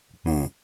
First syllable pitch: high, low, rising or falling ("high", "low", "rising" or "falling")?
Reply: low